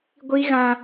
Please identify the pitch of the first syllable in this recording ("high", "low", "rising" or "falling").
high